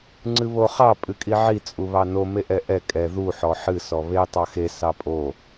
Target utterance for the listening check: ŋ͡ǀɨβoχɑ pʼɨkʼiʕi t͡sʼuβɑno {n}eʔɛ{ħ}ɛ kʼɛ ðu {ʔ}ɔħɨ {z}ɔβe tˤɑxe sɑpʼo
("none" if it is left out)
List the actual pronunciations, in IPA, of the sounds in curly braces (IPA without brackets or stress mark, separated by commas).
m, ʔ, ħ, s